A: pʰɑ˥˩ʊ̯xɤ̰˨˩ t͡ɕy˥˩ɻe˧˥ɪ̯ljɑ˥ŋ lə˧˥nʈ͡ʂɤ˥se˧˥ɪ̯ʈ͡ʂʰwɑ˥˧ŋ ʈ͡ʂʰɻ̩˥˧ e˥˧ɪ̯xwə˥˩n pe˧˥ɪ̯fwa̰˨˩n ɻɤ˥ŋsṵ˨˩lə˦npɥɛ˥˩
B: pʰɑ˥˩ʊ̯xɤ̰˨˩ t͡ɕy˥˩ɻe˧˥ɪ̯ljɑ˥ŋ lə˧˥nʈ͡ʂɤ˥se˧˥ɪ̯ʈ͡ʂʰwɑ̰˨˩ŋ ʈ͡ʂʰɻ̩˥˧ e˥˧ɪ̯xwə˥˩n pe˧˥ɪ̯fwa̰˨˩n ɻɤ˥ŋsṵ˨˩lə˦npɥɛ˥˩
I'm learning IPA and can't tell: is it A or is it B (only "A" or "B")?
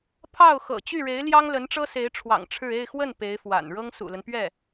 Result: B